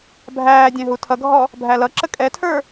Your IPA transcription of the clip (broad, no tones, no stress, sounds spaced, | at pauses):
bʱ æː dʲ ɛ̃ ɦ u tʰ ʌ ɡʱ ɔ | bʱ æ l ʌ ǁ ə kʼ ɛ tʰ ə˞